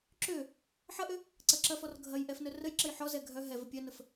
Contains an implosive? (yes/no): no